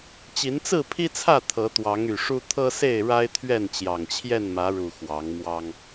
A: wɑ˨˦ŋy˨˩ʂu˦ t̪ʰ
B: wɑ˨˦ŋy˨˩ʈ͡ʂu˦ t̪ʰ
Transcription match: A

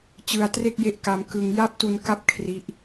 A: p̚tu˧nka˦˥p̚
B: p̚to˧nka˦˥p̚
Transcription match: A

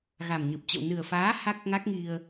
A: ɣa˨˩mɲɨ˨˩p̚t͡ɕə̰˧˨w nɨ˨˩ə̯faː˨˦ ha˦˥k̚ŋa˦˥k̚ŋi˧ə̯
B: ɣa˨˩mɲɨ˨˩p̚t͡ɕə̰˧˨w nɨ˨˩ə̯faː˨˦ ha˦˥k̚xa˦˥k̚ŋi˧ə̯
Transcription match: A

